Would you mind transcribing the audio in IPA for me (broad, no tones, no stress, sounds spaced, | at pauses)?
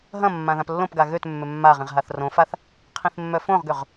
ɦ ɐ̃ mː ã ð ã p lː õ p ɡ a ɣ ø t mː ʏ mː a ʁ ĩ ʁ ɦ a θ r õ f a θ | qʰ ĩ θ mː œ f õ ʁ ɡ ø ʁ